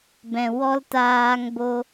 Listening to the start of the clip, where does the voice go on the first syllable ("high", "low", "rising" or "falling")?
low